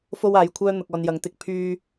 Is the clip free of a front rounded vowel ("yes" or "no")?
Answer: no